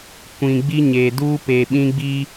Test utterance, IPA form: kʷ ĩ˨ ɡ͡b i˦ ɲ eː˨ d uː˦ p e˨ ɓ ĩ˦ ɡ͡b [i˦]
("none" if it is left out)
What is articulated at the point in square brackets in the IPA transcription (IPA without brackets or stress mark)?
i˦